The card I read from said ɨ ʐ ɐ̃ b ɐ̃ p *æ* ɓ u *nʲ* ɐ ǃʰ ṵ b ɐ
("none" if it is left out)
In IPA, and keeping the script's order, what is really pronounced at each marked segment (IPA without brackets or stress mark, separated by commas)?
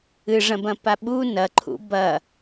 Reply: a, n